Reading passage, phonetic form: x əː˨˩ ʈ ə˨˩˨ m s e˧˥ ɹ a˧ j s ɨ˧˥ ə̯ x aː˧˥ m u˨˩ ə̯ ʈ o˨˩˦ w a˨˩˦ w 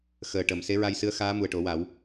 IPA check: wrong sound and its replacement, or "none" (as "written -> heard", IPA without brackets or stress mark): none